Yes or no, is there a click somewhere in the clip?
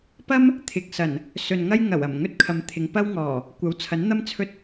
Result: no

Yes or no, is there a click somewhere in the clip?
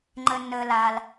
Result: yes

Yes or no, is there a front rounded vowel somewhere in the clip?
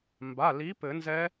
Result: no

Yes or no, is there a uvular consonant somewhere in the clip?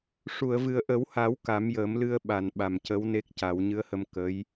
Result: no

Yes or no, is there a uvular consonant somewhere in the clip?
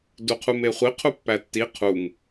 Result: yes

